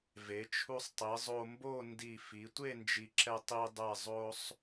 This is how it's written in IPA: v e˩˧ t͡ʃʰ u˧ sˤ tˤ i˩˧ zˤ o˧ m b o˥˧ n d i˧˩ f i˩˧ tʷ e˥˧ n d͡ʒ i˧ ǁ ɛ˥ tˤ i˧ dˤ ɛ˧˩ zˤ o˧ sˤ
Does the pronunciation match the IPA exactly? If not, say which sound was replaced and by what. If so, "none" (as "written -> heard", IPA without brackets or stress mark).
none